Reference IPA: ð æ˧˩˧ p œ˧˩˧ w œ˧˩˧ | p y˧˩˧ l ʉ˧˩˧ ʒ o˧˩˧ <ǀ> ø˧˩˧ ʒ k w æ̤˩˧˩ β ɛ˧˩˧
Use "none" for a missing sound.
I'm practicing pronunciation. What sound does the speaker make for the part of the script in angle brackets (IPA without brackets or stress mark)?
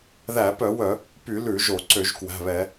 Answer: ǀ